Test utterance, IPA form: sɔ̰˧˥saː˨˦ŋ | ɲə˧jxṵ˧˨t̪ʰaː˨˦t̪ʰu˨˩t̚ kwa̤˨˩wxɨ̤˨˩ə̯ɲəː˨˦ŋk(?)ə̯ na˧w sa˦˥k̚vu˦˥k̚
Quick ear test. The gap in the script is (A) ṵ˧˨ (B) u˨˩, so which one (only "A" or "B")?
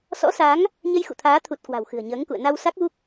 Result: A